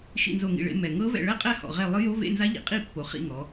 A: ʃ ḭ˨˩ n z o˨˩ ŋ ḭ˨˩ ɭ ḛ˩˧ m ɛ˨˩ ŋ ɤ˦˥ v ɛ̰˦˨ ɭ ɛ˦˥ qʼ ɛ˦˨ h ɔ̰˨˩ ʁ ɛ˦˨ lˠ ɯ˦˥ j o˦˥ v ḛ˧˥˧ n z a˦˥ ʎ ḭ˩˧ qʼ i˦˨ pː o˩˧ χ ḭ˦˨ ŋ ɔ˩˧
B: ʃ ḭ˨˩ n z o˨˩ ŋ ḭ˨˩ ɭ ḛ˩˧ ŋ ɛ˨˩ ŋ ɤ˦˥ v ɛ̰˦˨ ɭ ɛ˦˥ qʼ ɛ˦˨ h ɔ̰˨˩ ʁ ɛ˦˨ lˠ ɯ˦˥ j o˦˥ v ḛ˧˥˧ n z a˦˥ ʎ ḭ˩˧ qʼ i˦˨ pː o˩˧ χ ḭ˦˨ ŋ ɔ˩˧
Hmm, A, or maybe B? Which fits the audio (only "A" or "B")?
A